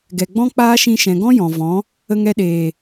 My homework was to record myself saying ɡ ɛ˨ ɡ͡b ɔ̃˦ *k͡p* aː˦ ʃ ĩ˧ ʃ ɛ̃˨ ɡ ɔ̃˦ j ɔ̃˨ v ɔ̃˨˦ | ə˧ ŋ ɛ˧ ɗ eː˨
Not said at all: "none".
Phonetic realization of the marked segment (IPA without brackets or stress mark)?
k͡p